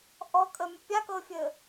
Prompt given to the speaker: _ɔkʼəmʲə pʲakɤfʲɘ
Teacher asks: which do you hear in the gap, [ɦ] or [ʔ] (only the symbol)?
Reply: ʔ